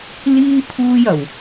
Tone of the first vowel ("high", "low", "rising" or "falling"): high